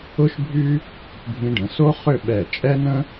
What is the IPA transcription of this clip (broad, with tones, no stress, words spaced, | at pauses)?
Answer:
ʊ˥ʃbʱy˥ | bʱĩ˧ɖə̃˩˧ so˥χʏ˥˧ ɓɛ˧˩t͡ʃʼɛ˥nə̃˥